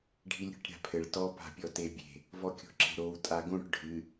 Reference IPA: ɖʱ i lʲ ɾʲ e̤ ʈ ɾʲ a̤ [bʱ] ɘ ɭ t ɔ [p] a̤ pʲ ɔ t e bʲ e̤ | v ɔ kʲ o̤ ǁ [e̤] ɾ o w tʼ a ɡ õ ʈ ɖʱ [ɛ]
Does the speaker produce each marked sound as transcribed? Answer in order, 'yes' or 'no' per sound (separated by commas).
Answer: no, yes, yes, no